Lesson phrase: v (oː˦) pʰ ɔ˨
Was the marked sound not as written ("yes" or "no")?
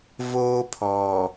no